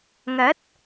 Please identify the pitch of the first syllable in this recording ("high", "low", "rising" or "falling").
rising